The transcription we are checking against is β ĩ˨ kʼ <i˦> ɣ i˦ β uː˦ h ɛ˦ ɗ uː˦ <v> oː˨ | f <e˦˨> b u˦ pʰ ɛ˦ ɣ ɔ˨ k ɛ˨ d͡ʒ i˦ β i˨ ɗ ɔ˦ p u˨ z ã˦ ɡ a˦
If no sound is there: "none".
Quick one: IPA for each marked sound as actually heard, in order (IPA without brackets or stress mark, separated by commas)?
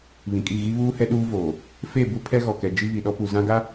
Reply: i˦˨, v, e˦˨